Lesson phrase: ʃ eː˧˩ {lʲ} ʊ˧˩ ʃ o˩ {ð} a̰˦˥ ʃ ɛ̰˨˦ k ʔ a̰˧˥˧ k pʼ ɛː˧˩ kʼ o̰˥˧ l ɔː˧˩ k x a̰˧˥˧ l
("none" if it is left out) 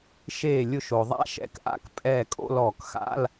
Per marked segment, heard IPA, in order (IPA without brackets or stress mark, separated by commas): lʲ, ðˤ